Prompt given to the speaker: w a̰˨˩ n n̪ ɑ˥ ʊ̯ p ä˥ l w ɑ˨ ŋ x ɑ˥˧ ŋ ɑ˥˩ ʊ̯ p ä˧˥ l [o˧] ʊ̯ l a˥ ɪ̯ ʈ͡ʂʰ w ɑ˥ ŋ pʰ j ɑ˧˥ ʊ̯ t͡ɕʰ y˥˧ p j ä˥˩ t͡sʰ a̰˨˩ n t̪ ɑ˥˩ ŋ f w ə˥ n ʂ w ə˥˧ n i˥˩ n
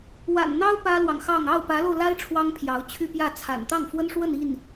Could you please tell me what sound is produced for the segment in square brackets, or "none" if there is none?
o˧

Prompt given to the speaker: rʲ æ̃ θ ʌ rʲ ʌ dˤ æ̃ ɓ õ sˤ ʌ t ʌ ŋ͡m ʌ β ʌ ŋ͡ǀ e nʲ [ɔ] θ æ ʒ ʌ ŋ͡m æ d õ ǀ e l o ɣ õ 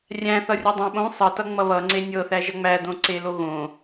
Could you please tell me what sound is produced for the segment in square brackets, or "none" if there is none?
ɤ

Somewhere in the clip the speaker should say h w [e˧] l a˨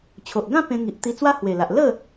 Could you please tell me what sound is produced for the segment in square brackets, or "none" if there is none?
e˨˩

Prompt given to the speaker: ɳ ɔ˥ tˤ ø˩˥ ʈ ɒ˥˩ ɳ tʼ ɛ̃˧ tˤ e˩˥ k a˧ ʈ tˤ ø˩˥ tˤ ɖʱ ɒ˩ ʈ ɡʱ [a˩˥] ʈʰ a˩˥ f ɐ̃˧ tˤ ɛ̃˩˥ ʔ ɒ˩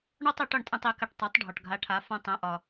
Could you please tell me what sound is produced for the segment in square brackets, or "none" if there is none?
a˩˥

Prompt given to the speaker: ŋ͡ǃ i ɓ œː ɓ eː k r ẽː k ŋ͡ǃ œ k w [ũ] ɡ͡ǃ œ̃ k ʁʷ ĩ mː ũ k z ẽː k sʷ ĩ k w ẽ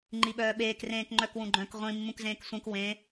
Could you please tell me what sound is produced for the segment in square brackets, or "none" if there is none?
ũ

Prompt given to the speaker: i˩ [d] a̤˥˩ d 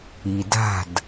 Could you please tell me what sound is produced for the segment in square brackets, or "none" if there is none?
d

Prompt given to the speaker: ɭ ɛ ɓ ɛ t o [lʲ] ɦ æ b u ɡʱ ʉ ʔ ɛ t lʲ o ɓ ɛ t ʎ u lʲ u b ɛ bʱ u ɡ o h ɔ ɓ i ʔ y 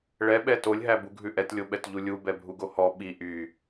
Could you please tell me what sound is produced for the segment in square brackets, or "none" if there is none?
lʲ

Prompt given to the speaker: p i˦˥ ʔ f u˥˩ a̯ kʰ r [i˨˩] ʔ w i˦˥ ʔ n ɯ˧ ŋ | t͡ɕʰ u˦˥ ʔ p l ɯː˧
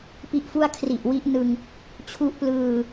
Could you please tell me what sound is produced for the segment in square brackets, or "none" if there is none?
i˨˩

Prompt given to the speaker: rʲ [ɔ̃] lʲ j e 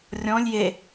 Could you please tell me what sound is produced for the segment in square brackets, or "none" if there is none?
ɔ̃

